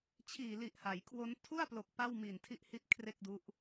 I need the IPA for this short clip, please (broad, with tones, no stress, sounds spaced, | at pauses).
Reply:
t͡ɕʰ iː˨˩ l i˨˩ ʔ h a˩˦ j kʰ w o˦˥ n tʰ u˥˩ a̯ p l o˨˩ k̚ p a˥˩ w m i˨˩ n tʰ i˥˩ ʔ h i˥˩ t̚ kʰ r e˥˩ k̚ d u˦˥ ʔ